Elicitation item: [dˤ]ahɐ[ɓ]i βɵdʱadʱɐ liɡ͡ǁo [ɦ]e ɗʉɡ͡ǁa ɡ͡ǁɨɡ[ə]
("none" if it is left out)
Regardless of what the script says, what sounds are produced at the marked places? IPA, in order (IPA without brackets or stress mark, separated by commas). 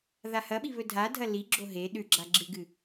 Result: ð, ɓ, ɦ, ɨ